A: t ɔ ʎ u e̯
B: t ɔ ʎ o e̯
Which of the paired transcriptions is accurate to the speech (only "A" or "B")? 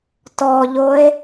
B